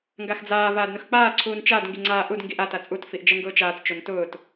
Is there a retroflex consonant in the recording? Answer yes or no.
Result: no